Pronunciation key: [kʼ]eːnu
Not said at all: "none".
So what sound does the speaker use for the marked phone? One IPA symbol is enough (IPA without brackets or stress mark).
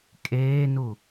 kʼ